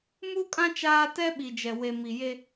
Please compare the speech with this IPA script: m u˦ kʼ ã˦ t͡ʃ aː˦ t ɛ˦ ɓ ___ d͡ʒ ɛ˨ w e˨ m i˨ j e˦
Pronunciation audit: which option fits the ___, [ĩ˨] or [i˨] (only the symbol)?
i˨